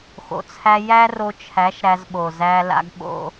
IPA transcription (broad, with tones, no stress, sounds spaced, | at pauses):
x o̰˨ t͡sʰ æ˧ j æ˦ r o˧ t͡ʃʰ æ˨˦ ʃ ɾ æ˧ z ɓ o˨ z æ˧ l a̰˧ ɡ ɓ o̰˧